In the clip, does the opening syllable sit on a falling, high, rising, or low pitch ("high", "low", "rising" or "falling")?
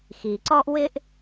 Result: low